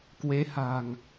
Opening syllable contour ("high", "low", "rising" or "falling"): rising